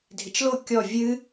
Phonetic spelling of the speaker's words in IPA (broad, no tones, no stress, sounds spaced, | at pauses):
dʱ ɪ t͡ʃ l o kʲ ɔ vʲ ɨ